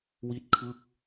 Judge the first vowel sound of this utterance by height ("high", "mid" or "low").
high